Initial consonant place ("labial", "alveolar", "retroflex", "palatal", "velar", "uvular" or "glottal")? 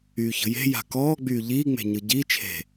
palatal